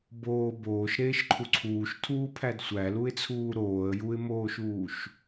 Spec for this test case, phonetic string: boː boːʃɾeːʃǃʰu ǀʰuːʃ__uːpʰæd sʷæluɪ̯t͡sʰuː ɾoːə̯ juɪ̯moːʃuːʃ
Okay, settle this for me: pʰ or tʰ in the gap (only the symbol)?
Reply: tʰ